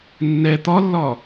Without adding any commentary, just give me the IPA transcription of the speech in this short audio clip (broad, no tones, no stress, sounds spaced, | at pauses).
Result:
nː ɛ t̪ ɒ lː ɒ